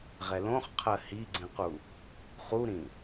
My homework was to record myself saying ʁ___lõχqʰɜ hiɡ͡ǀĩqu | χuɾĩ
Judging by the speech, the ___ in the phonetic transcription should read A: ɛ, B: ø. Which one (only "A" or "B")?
A